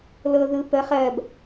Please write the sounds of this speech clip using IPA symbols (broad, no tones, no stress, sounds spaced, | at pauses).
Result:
l ɤ ð ɯ p ə χ ɜ b